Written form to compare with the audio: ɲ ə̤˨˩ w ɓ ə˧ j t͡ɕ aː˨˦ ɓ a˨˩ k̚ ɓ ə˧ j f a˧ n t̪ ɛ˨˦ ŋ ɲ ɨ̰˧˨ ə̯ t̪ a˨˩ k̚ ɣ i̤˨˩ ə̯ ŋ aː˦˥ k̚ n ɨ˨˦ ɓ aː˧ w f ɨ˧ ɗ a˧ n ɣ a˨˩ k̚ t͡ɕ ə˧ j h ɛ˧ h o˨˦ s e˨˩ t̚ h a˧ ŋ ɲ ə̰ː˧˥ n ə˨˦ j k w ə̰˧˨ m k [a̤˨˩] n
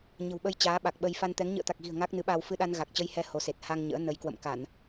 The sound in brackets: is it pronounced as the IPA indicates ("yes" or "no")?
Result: no